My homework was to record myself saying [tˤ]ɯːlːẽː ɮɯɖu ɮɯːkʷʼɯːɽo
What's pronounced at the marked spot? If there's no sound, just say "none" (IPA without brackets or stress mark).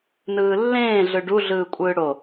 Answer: n